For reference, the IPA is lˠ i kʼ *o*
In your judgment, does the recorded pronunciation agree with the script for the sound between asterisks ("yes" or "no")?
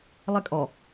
no